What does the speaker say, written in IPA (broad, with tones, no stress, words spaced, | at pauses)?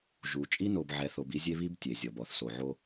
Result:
ʒu˨ t͡ʃʼi˦no˨bʕɛ˨θo˨b i˦zʲe˦βi˦b tʲe˨zʲɔ˨b ɔ˨θso˨ʕo˦